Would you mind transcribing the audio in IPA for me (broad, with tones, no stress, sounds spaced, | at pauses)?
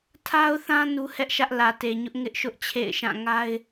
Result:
tʰ a˦ ʊ̯ θ ã˦ n u˦ h ɛ˦ ʔ ʃ ä˦ ʔ l ä˨ t e˨ ɲ ʊ˦ ʔ ŋ ɪ˦ ʔ ʃ ʊ˦ ʔ t͡ɕʰ ḛ˦˨ ɪ̯ ʃ ã˦˨ ŋ a˦ ɪ̯